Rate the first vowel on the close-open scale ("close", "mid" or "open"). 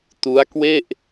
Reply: close